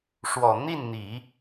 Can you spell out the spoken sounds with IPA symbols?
ʂ w ɔ˨˩ n̪ i˥˩ n n̪ i˨˩˦

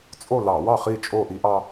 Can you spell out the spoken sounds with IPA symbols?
t͡sʼ o˥˨ l ɑ˧˩˧ w ɑ˥˨ χ i˥˨ t͡ʃʼ o˥˨ ʔ i˦ ʔ ɑ˦

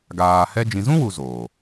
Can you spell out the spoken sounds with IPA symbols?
ɡ aː˨ h ɛ˧ d͡ʒ ĩ˨ z ũ˦ w u˨ z oː˨

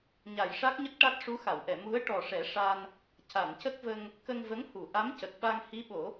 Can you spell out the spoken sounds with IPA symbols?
ɲ a˨˩˨ j ʂ a˦˥ k̚ ɲ ə˦˥ k̚ ʈ a˦˥ t̚ ʂ u˧˥ x a˨˩˨ w ʔ ɛ˨˩˨ m u˧˥ ə̯ ʈ ɔ˨˩ ʂ ɛ˨˩˦ ʂ a˧ n | c a˨˩˨ n c ə˦˥ k̚ v ə˧ ŋ | k ə˧ ŋ v ə˧˥ ŋ h u˨˩˨ ʔ a˧˥ m c ə˨˩ k̚ ɓ a˧ ŋ h i˧˥ ɓ o˨˩˦

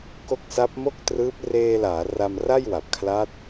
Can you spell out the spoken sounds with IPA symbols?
k o˦˥ k̚ s a˦˥ p̚ m o˥˩ k̚ t r ɯː˦˥ p̚ r eː˧ l aː˩˦ r a˧ m r a˥˩ j w a˨˩ p̚ kʰ l a˦˥ t̚

